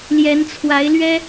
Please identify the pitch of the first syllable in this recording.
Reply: rising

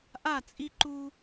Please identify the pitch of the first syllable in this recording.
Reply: falling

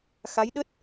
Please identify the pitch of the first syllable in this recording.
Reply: rising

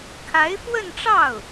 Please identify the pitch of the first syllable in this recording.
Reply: rising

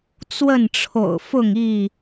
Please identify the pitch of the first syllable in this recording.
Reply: falling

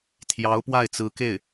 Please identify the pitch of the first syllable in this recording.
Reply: rising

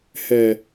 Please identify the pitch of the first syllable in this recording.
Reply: low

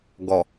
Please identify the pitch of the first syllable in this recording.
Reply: low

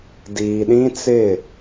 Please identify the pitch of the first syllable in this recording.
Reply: low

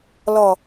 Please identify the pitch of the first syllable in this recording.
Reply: low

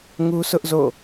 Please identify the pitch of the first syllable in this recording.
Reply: high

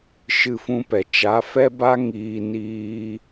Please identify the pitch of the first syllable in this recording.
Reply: falling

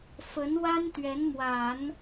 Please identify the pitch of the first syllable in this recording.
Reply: rising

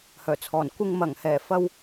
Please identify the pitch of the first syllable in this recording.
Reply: low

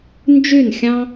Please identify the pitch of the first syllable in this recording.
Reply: falling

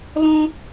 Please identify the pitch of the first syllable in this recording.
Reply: high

